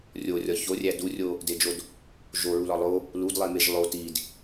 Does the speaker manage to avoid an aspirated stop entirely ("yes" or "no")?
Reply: yes